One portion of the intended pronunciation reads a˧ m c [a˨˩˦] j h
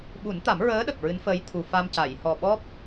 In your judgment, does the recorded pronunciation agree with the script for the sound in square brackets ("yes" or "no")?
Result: no